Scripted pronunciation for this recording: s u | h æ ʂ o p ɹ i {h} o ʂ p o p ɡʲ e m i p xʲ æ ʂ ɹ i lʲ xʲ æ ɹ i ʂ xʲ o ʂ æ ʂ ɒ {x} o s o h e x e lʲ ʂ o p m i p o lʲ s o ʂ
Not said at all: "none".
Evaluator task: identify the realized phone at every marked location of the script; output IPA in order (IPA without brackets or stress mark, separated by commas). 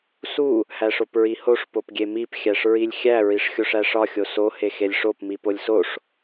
h, xʲ